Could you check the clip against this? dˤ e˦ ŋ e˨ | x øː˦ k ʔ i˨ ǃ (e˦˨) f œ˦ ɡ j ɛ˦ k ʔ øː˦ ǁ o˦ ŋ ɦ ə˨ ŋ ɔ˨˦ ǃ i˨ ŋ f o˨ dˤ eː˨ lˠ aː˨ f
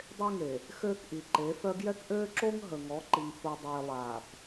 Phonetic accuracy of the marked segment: incorrect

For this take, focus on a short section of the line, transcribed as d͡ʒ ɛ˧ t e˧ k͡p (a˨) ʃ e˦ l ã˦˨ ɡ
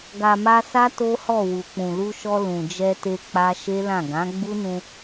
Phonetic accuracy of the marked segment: incorrect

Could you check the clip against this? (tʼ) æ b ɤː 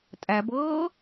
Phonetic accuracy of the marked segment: correct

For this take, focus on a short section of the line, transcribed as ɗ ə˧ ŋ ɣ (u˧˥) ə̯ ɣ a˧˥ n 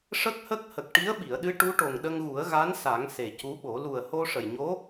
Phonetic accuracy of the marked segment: incorrect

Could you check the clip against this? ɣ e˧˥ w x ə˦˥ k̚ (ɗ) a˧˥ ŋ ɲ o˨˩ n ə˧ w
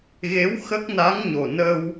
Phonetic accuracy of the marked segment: incorrect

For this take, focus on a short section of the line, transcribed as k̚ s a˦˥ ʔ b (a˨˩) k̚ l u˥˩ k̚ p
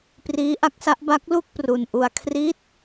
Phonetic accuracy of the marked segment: incorrect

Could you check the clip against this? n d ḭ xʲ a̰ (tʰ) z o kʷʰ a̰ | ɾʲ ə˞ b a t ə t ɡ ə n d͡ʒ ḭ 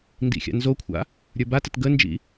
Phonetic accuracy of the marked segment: incorrect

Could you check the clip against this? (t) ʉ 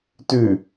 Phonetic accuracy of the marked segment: correct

